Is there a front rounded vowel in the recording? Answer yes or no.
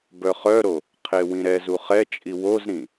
yes